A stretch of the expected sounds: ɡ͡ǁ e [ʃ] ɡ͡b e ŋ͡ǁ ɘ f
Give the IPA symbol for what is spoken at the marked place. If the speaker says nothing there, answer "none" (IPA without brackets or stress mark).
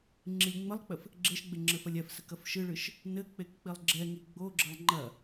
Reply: ʃ